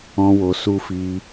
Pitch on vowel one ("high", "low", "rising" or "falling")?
high